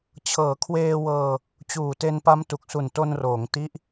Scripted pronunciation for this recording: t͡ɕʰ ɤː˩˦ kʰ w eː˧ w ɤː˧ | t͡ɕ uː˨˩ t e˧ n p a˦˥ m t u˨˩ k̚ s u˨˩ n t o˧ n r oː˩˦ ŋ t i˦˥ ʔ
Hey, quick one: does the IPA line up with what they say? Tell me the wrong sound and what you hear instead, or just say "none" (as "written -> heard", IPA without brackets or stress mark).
none